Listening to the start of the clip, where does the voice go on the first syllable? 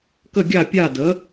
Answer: falling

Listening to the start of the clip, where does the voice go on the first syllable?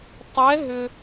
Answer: rising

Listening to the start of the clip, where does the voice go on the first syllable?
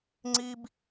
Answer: high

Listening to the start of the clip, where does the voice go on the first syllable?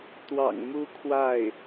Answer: low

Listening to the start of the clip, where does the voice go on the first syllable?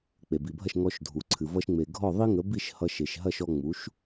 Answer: low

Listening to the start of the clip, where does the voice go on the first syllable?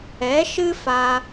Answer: rising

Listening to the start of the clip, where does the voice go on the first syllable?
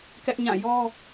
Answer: high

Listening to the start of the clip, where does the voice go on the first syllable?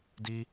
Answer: high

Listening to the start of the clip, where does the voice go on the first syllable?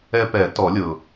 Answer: high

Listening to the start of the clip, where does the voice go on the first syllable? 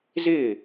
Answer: falling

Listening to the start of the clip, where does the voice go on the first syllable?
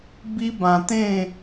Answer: high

